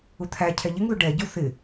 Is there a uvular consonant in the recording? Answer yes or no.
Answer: no